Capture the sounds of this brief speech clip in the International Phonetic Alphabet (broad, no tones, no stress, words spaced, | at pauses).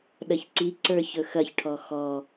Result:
ɗɐçǀiǀə˞ çɵxɐçʈʰɔ xɔ